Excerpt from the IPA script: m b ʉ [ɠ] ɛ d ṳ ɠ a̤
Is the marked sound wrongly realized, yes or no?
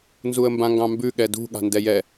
no